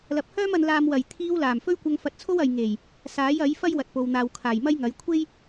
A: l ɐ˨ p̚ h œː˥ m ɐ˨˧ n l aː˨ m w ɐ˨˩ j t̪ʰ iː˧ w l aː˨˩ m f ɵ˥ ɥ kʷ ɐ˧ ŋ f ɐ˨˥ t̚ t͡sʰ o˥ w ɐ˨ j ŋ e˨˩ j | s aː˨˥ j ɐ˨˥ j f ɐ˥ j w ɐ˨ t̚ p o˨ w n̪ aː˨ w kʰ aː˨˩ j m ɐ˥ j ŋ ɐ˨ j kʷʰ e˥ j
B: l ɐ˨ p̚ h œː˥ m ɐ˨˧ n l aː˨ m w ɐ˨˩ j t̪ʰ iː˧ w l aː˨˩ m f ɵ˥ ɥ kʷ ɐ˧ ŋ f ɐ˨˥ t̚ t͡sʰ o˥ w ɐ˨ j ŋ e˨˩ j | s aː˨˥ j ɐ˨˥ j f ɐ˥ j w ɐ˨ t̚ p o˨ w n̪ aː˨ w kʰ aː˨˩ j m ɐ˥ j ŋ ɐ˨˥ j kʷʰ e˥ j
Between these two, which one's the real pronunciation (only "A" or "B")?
B